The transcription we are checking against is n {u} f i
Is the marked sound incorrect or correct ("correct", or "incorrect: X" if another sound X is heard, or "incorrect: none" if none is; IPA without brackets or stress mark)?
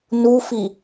correct